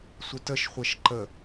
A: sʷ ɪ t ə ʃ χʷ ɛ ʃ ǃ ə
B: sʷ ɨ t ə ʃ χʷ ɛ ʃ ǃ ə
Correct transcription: A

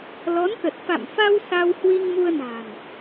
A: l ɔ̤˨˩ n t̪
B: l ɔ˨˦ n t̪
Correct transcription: B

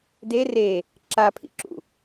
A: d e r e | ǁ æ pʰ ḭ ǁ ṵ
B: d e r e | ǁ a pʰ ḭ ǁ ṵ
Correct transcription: B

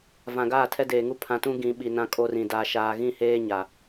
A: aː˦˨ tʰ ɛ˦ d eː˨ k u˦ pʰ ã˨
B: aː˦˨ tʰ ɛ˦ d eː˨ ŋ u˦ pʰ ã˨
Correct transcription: B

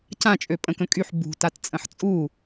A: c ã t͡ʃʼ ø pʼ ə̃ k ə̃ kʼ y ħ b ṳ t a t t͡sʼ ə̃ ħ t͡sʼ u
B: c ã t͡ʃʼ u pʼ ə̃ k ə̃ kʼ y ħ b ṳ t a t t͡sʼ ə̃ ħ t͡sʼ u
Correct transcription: A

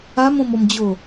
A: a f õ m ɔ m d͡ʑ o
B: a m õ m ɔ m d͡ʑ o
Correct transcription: B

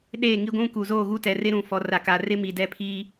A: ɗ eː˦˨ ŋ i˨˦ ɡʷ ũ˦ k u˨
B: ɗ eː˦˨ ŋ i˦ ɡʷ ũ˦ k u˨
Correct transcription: B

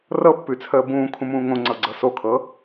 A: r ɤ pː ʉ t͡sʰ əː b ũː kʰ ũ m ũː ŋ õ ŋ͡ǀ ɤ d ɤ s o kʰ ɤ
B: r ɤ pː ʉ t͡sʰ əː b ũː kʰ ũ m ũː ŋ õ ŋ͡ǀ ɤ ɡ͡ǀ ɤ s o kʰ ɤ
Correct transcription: B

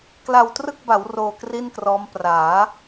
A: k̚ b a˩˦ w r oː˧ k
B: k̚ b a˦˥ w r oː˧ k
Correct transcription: A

